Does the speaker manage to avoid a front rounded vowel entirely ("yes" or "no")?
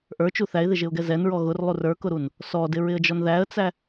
yes